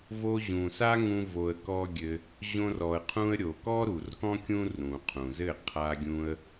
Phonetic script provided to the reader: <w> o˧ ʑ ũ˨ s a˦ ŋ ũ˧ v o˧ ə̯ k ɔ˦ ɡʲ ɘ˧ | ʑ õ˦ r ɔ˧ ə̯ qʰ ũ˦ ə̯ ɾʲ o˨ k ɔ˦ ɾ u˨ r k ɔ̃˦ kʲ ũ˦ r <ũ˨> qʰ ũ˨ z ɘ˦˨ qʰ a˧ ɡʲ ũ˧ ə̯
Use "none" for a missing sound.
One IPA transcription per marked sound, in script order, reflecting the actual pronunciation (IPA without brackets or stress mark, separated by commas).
v, ũ˨